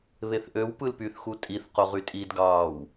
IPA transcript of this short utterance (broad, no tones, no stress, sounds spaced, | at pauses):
β e θ ʔ ø w p ɯ l p y θ x u tʼ i θ q o ʁ y tʼ i d ɡ ɑː w